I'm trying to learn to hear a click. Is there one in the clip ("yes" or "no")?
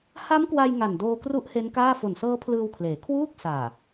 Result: no